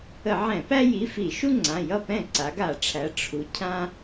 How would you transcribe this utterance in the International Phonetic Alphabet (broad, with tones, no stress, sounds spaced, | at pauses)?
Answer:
ə˧˩˧ ʕ ɛ̃˧˩˧ p æ˦ j i˩˧˩ f i˧˩˧ ʃ u˦ ŋ͡ǀ ã˩˧˩ j ʌ˥˩ p ɛ̃˥˩ ǀ a˩˧ ɡ a˧˩˧ ʈ͡ʂʰ æ˩˧ ʈ͡ʂʰ u˩˧ cʰ ã˦